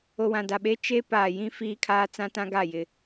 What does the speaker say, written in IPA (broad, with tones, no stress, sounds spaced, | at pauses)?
o˨ w ã˨ d a˨ ɓ e˦ t͡ʃ e˦ p aː˨ j ĩ˦ f iː˦ kʰ aː˦ t͡s ã˦ t ã˦ ɡ a˦˨ j ɪ˦